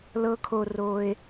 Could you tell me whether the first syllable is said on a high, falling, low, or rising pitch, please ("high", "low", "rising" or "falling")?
rising